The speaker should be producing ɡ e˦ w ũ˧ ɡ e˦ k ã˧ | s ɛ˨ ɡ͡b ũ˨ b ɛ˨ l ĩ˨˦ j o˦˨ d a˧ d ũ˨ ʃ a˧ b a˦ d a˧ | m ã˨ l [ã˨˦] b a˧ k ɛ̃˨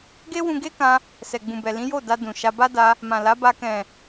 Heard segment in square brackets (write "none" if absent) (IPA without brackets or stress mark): a˨˦